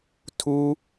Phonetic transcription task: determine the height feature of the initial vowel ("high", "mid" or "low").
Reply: high